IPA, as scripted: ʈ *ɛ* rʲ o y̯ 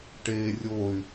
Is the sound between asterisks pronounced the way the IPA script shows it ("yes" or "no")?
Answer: no